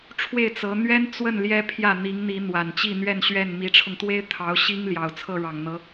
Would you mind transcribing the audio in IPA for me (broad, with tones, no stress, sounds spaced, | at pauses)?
ʈ͡ʂʰ w e˥˩ ɪ̯ t͡s ɤ˧˥ n̪ ɥ ɛ˥ n t͡s w ə˥˩ n l j ɛ˥ pʰ j ä˥˩ n̪ i˧˥ ŋ n̪ i˧˥ n̪ w a˨˩ n t͡ɕ i˥˧ n̪ ɥ ɛ˥˧ n ɕ ɥ ɛ˥˩ n m i˧˥ ʈ͡ʂʰ ʊ˧ ŋ t̪ w e˥ ɪ̯ t̪ʰ ɑ˧˥ ʊ̯ ɕ i˥ ŋ l j ɑ˨˩ ʊ̯ t͡sʰ ɤ˥˩ ɻ ɑ˨˩ ŋ n̪ ɤ˧˥